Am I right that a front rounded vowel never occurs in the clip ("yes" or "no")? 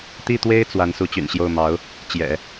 no